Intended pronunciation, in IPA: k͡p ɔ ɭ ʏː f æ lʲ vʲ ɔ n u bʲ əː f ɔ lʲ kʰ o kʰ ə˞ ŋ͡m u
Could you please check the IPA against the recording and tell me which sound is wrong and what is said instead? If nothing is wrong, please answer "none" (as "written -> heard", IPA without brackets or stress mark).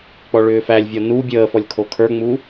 none